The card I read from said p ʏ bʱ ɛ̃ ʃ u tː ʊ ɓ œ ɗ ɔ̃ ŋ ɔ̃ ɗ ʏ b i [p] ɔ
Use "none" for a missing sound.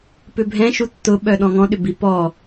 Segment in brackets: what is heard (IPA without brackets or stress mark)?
p